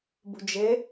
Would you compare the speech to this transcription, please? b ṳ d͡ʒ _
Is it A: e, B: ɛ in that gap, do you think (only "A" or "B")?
A